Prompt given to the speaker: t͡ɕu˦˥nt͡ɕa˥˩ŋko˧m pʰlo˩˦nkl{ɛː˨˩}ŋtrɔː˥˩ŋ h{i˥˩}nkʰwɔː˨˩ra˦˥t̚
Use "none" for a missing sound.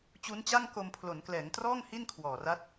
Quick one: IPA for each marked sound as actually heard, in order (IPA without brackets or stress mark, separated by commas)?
ɛː˩˦, i˥˩